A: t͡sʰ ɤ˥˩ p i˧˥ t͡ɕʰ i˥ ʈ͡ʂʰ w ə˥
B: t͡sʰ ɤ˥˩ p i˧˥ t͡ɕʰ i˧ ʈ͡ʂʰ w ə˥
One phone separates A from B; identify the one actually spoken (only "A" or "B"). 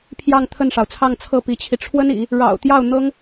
B